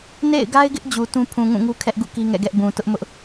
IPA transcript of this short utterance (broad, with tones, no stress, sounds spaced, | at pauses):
n ḛ˦˨ ɪ̯ ɡ a˦ ɪ̯ ɡ ɪ˦ ʔ d͡ʑ u˨ t ũ˦ pʰ ũ˨ ŋ ũ˦˨ ŋ u˦ kʰ ɛ˦ ʔ ɡ ṵ˦˨ k i˦ ŋ ɛ̰˦˨ ɡ ɛ˦ ʔ b ũ˨ t ʊ˦ ʔ m ʊ˦ ʔ